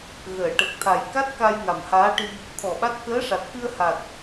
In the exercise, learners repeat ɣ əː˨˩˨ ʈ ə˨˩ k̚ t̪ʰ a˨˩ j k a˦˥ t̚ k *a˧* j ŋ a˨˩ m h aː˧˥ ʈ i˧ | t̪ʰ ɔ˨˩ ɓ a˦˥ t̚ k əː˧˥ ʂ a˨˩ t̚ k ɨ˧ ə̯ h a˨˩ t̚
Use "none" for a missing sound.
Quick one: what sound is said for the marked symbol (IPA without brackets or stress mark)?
a˧